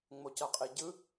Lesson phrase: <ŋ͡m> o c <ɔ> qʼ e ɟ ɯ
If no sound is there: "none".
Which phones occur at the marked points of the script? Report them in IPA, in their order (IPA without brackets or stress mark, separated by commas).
ŋ͡m, ʌ